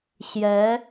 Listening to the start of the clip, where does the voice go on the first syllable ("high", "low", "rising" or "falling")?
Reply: rising